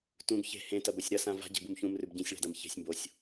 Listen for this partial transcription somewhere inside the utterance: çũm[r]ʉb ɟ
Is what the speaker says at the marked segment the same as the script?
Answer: yes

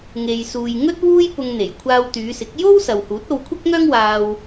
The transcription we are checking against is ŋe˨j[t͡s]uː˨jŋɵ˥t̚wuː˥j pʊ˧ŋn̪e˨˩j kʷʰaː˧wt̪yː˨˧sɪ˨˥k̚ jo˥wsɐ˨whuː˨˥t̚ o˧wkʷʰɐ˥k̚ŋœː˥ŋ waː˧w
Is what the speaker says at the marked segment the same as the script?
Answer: no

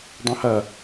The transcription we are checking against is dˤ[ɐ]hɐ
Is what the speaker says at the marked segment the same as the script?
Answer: no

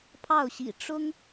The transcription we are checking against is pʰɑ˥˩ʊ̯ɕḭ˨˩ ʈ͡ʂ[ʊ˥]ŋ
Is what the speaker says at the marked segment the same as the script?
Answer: yes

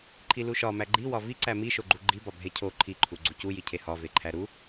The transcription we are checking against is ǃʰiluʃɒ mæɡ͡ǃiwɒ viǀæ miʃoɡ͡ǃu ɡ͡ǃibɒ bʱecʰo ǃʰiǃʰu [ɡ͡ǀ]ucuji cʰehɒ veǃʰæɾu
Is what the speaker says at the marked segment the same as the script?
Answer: yes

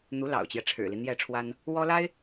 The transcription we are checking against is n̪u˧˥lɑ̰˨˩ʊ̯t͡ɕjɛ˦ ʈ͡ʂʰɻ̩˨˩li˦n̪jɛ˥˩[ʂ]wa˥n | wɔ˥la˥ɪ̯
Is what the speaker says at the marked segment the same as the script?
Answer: no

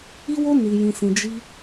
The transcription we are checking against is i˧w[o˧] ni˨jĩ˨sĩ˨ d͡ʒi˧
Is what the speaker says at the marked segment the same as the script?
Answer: yes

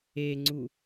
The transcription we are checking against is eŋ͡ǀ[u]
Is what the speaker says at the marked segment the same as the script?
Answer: yes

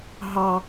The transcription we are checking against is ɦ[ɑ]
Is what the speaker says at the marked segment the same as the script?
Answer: yes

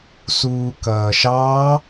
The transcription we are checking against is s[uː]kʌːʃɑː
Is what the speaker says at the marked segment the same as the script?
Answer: yes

